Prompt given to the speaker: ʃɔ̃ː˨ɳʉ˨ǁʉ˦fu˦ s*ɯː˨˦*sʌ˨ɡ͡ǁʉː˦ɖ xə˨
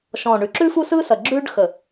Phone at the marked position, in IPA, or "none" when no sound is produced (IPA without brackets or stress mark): ɯː˦